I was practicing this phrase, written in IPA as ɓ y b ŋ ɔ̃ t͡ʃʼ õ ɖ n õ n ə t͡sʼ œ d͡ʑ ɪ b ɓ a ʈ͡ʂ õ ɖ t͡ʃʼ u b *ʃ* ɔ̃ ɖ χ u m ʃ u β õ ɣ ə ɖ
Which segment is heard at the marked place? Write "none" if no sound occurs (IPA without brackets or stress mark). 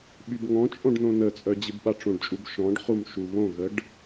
ʃ